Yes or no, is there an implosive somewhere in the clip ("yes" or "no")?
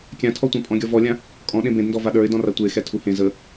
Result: yes